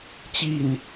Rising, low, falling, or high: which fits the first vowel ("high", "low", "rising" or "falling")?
falling